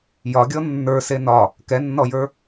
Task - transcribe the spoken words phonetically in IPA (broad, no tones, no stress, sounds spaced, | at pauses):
j ɒ ɡʲ ɔ nː ə˞ s e n ɒ | k ɛ nː ɔ j ə˞